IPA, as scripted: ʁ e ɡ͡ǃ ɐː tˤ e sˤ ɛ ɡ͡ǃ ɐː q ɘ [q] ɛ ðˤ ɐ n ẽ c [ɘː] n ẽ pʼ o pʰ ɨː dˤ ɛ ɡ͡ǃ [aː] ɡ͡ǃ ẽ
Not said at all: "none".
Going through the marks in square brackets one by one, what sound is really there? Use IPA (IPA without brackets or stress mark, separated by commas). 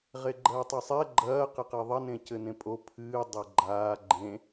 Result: q, ɘ, aː